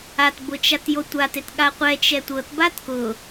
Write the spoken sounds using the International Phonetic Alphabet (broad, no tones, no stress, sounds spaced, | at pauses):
a t b ʊ t͡ʃ a t j o tʷ a t e t ɠ a qʷ ɛ t͡ʃ ɛ tʷ ɤ t b a t k ʊ